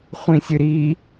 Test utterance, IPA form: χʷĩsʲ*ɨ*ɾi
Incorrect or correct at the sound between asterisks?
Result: correct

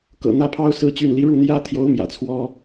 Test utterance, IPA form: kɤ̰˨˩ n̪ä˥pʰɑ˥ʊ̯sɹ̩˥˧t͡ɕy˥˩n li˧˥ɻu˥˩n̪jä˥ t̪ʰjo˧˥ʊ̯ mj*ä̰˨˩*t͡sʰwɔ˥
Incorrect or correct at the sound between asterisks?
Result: correct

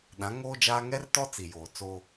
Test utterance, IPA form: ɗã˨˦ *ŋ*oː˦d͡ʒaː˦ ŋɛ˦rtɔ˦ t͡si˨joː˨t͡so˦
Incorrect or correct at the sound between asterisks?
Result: correct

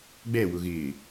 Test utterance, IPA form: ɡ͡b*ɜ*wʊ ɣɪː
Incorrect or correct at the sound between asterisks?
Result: incorrect: ɛ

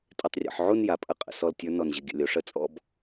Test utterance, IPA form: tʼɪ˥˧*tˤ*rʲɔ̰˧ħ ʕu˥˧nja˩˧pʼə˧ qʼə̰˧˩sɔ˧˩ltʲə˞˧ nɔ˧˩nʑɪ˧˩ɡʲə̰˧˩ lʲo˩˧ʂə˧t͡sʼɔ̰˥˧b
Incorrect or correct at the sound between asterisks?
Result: correct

